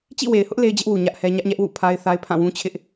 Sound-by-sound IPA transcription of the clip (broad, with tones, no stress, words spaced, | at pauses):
t͡ɕḭ˦˨we˨ɪ̯hʊ˦ʔ le˦ɪ̯d͡ʑɪ˦ʔwu˨ ɲä˦ʔhɛ˦ ɲä˦ʔɲɛ˦ʔ wṵ˦˨pʰa˦ɪ̯θa˦ɪ̯ pʰã˦˨wũ˦t͡ɕʰɪ˦ʔ